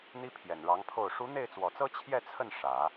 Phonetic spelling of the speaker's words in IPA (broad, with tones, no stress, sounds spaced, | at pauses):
n̪ i˥ pʰ j ɛ˨˩ n ɻ ɑ˧˥ ŋ pʰ o˥˩ ʊ̯ ʂ u˧˥ n̪ e˥˩ ɪ̯ t͡s w ɔ˨˩ t͡s ɤ˥ t͡ɕʰ j ɛ˥˧ t͡sʰ ə˥˩ n ʂ ä˨˩˦